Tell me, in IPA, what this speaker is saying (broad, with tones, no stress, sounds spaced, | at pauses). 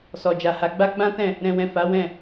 s ɔ˨ d͡ʒ a˨ h a˨˦ ɡ͡b a˦ ɡ͡b ã˦ t ɛ̃˦˨ | ɾ ɛ̃˨ w ɛ̃˨ f a˨˦ w ɛ̃˦˨